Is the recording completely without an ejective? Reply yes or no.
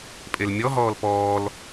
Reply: no